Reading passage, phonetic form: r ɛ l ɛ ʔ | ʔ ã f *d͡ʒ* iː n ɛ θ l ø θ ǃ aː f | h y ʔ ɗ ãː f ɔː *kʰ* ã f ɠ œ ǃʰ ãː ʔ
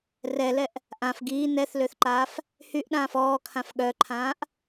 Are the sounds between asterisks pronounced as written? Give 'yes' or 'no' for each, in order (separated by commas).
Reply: no, yes